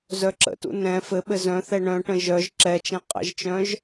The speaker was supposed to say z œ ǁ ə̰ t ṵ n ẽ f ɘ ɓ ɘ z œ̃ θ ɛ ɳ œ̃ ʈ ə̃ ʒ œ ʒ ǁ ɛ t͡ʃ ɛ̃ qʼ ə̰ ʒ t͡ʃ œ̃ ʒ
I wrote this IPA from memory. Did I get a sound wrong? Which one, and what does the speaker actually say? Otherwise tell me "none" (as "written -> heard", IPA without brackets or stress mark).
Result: ẽ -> ɛ̃